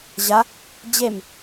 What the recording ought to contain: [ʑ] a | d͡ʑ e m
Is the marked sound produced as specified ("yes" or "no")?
yes